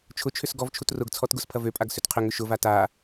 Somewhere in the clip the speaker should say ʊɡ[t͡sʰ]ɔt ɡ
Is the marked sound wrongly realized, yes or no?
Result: no